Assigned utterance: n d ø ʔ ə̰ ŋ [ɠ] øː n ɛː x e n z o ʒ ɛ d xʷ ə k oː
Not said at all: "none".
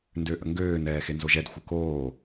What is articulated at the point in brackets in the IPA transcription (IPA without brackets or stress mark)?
ɡ